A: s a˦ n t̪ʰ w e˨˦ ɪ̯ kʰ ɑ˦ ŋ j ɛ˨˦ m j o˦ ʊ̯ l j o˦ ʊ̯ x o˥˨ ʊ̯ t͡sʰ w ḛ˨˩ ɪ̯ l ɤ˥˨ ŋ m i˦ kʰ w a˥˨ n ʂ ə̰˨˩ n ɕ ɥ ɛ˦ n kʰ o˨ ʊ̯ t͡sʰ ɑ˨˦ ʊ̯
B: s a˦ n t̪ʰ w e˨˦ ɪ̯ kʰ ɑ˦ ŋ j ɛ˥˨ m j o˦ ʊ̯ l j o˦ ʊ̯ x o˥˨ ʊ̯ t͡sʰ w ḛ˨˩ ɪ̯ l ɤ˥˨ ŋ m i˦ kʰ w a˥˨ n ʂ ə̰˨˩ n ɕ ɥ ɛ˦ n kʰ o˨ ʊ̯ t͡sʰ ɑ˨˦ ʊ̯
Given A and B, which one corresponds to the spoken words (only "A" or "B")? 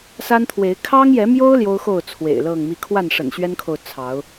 A